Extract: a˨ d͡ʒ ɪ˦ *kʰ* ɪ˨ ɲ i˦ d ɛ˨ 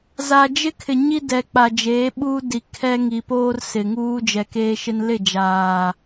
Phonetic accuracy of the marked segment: correct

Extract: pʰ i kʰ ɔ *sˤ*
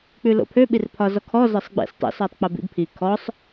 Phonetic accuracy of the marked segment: correct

